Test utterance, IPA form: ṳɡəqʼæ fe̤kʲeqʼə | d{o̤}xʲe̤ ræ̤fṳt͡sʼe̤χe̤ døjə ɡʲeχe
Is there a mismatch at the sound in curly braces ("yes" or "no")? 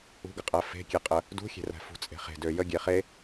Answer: yes